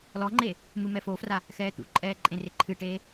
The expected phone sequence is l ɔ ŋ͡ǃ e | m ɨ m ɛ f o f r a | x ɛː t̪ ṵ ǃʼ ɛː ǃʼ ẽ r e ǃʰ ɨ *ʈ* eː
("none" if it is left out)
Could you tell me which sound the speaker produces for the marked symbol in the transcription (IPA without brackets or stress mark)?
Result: ʈ